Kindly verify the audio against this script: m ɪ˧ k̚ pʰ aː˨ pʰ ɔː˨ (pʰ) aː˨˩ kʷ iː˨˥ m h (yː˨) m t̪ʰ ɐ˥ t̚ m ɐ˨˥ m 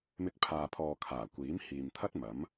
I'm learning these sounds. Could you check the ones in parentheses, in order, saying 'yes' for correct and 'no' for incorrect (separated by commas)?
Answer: no, no